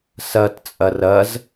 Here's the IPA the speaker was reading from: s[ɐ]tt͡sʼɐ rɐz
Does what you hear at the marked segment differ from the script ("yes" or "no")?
no